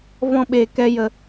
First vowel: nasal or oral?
nasal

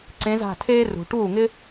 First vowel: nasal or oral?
nasal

